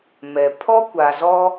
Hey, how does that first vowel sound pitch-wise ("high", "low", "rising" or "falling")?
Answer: low